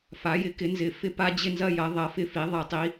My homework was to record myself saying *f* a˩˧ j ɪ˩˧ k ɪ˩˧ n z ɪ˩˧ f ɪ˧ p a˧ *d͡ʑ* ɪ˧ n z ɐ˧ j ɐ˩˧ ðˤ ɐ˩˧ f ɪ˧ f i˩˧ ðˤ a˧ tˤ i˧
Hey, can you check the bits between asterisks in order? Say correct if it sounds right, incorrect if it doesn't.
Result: correct, correct

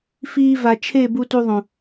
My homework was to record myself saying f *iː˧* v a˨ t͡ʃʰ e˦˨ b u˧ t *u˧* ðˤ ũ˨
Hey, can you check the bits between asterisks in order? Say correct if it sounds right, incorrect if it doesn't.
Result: correct, correct

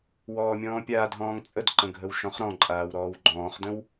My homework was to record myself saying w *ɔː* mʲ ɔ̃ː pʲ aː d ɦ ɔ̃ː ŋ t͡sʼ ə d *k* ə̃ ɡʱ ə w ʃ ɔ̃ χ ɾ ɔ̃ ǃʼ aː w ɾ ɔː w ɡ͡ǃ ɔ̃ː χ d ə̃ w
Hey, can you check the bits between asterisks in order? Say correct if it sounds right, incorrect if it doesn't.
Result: correct, incorrect

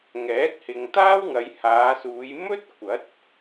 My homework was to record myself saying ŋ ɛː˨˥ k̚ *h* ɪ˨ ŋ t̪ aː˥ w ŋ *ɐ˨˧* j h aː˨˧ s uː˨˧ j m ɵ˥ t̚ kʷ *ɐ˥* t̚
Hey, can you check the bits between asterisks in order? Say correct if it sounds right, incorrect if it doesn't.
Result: correct, correct, incorrect

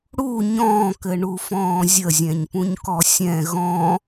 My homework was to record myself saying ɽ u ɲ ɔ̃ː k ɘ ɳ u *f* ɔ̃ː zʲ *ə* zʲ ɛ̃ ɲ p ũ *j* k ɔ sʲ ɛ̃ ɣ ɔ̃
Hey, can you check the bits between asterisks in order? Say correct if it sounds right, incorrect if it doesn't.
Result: correct, correct, incorrect

